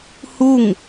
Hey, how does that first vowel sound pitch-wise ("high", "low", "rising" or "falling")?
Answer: falling